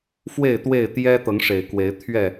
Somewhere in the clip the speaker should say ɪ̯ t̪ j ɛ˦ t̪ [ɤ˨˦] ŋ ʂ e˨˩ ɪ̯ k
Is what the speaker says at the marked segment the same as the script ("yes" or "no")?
yes